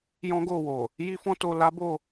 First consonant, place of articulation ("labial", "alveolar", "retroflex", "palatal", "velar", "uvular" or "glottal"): palatal